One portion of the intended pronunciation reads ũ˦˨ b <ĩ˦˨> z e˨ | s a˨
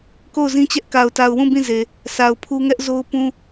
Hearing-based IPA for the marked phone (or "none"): ĩ˦˨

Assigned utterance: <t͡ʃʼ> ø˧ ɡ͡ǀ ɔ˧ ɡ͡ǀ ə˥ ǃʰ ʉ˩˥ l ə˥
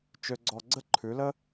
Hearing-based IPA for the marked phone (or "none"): t͡ʃ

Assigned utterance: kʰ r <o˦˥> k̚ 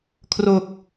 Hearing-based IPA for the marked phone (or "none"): o˨˩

